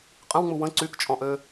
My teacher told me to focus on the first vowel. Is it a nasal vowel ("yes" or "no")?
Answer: yes